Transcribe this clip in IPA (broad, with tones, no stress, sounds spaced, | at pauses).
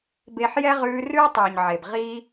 b e˧ ħ j ɛ˦ ʁ ʉː˧ r ʉː˦ tˤ ʉː˨ ɲ ʕ e˨ b ʁ i˧